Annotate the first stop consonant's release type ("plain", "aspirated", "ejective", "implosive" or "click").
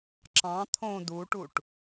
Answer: click